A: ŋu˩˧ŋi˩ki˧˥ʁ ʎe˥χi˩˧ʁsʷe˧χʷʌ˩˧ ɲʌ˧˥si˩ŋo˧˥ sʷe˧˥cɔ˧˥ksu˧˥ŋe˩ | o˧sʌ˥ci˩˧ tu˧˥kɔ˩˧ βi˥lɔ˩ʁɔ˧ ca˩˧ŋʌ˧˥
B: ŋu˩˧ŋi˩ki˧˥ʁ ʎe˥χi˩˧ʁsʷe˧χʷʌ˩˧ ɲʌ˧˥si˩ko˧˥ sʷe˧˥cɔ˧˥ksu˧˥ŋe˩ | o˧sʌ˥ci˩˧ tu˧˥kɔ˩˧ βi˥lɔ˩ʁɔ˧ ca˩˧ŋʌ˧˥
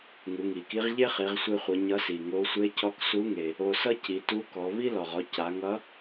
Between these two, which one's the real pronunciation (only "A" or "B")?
A